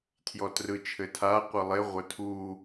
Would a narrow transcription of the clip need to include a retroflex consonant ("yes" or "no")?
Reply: no